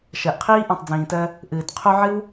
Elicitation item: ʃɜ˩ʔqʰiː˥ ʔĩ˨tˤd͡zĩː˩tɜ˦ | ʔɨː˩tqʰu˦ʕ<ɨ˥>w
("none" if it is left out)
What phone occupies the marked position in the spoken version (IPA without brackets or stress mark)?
ɨ˥